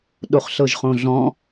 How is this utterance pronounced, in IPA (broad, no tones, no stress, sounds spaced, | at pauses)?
ɗ o χ ɬ ɤ ʒ χ õ ɮ ɔ̃